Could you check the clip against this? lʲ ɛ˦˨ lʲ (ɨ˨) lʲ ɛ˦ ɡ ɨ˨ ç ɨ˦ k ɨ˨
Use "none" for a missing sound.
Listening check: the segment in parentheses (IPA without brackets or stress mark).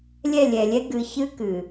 ɛ˨